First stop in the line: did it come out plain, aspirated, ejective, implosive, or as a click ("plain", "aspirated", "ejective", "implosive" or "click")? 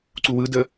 click